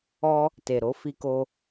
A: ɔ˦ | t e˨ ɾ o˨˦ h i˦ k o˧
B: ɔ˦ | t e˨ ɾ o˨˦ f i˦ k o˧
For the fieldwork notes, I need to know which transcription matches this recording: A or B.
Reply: B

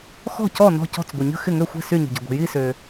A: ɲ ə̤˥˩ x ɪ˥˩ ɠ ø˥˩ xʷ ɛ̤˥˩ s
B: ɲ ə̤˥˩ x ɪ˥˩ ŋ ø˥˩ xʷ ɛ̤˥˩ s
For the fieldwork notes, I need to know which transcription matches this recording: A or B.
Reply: B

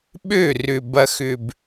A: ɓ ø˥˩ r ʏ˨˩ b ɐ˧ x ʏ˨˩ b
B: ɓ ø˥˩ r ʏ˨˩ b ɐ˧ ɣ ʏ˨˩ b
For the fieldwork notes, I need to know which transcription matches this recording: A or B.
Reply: A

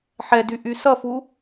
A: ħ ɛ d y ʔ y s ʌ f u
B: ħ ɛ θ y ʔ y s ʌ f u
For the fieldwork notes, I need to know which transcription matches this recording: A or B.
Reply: A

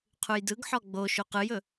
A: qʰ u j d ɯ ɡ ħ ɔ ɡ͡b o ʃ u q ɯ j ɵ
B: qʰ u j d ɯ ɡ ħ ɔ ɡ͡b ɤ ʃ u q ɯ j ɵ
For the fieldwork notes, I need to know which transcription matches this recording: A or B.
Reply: A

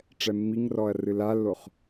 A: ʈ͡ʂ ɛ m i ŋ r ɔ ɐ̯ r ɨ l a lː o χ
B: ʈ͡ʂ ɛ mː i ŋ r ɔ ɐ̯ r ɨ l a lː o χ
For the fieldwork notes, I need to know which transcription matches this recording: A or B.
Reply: B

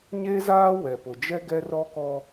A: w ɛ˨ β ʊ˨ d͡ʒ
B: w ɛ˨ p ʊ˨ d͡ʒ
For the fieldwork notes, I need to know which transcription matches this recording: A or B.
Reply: B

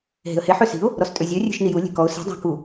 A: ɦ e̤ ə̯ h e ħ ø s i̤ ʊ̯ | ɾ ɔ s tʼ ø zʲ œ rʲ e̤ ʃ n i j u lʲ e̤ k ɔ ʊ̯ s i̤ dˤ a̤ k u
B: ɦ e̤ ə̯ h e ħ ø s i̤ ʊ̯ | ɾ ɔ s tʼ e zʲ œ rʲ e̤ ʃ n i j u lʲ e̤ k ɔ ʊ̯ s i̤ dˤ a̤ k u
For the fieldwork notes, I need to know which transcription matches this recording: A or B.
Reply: A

